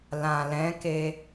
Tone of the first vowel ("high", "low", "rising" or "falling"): low